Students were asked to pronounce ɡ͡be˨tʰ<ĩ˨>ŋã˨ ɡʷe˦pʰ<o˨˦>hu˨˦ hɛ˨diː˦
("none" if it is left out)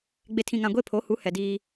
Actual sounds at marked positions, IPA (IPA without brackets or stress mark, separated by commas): ĩ˨, o˨˦